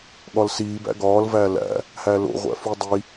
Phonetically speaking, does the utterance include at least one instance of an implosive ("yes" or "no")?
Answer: yes